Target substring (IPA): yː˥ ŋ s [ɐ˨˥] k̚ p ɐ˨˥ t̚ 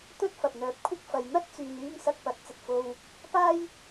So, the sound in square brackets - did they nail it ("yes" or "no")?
no